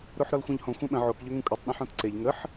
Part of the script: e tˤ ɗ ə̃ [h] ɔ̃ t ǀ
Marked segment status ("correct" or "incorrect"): incorrect